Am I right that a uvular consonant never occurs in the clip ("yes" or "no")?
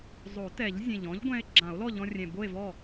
yes